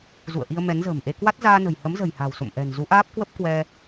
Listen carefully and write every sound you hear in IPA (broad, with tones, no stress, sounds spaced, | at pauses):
z ṵ˧˨ ə̯ ʔ i˧ ə̯ m ɛ˨˦ n z ə̤ː˨˩ m ʔ e˧ k w a˦˥ t̚ z aː˧ n ə̤˨˩ j h ə˨˦ m z ə̤˨˩ j h a̤˨˩ w s o̰˧˨ m ʔ ɛ̤˨˩ n z u˨˦ ʔ aː˦˥ p̚ k w ə˦˥ p̚ k w ɛ˧